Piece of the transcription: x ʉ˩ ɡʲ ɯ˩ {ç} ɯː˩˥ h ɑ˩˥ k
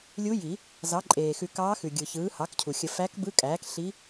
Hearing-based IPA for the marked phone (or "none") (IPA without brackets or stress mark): ç